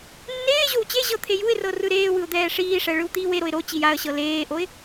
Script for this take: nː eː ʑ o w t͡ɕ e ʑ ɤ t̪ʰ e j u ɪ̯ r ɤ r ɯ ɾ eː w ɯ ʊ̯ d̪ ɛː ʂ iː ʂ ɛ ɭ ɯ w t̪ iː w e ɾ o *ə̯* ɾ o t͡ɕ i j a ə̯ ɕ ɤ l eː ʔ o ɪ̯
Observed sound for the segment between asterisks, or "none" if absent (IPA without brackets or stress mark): ɪ̯